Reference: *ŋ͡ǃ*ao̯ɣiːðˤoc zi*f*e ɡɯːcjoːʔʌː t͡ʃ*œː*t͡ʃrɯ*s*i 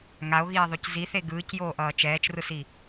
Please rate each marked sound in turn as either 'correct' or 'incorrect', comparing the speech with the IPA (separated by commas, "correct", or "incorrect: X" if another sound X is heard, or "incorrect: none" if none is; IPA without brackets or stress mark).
incorrect: ŋ, incorrect: θ, incorrect: ɛː, correct